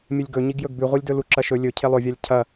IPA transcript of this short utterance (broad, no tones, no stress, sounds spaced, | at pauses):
mʲ ɨ lʲ ɡ ɵ ɲ i ɡ j ɵ ɡ b ʉ ʁʷ i lʲ d ɵ l u ǁ ɐ ʃ ɵ lʲ ɵ cʰ e lˠ ɵ vʲ a lʲ cʰ ɐ